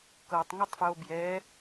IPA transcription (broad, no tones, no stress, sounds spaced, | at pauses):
k ɤ tˤ ŋ ɯ tˤ f j o b j ɛ